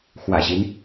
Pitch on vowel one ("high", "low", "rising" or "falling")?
low